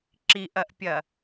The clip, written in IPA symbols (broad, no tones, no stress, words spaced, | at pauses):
ǁiʔɐʔpʲɐ